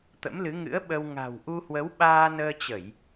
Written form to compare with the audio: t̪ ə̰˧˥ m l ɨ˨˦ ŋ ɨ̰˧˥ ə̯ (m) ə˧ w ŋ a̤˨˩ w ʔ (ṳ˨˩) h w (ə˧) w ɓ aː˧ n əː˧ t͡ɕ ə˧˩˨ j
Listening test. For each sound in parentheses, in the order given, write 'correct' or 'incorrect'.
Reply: incorrect: ɓ, incorrect: u˧, incorrect: ə˨˦

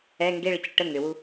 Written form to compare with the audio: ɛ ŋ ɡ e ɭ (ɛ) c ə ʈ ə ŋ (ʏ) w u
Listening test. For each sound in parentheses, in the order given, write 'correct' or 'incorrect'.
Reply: incorrect: ə, correct

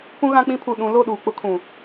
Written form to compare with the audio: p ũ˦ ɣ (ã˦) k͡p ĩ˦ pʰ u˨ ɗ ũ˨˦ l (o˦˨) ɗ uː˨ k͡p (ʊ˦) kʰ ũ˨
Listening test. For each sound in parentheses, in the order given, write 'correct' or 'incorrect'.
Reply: correct, correct, correct

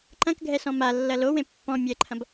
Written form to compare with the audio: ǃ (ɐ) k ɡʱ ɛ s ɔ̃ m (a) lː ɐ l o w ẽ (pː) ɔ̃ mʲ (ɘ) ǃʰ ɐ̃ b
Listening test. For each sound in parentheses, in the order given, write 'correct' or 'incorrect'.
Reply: incorrect: ɐ̃, correct, correct, incorrect: ɛ

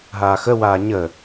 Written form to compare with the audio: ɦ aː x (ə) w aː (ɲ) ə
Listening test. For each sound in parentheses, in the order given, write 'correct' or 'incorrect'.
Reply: correct, correct

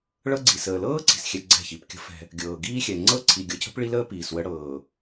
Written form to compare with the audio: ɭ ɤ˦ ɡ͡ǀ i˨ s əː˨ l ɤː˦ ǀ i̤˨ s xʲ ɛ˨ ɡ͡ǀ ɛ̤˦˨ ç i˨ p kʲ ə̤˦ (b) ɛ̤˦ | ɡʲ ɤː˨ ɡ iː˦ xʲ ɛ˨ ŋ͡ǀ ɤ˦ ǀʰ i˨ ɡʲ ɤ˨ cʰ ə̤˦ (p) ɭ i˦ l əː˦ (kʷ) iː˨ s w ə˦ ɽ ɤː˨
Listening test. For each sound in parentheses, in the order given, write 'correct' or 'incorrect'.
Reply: incorrect: f, correct, incorrect: p

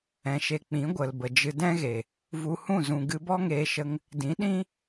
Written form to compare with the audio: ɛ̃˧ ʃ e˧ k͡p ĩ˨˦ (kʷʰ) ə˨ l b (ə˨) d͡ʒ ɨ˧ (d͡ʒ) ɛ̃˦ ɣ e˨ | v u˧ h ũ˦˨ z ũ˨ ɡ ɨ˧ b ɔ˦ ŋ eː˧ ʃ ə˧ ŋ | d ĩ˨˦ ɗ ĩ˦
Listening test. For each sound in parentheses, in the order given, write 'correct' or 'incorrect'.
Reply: incorrect: ɡʷ, correct, incorrect: d

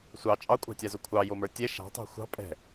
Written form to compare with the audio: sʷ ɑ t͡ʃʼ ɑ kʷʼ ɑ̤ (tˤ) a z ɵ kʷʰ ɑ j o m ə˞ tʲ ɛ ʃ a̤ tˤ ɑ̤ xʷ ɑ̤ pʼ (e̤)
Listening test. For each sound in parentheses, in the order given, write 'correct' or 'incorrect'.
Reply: incorrect: tʲ, incorrect: ɛ̤

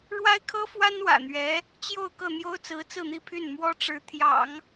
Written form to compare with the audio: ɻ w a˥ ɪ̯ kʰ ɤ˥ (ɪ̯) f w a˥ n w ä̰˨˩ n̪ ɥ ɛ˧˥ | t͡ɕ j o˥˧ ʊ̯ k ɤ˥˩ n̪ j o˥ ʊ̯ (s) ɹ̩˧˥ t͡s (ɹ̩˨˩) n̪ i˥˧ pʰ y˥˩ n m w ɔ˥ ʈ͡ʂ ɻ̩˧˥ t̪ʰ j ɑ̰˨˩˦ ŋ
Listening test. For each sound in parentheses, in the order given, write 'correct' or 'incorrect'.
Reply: incorrect: none, incorrect: t͡s, incorrect: ɹ̩˥˧

